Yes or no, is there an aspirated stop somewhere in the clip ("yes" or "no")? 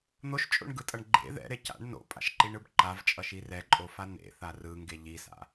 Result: no